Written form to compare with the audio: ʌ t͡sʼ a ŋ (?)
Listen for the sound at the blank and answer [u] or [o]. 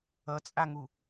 u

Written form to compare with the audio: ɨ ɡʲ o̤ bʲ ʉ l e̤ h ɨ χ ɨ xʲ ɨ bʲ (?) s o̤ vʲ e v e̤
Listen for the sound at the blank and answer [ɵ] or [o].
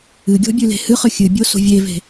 o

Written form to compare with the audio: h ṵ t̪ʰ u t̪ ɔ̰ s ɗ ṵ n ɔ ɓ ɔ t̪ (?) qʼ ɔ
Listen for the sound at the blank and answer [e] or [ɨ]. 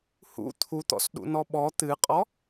ɨ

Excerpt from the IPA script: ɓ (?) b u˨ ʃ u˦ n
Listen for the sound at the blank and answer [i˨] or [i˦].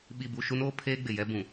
i˨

